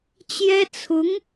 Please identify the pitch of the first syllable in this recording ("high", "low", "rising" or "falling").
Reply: high